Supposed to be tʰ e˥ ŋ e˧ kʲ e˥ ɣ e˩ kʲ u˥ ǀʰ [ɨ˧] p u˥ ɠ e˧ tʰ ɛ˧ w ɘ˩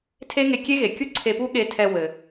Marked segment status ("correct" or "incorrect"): incorrect